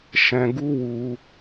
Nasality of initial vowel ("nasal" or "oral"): nasal